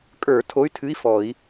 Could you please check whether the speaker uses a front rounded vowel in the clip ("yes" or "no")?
yes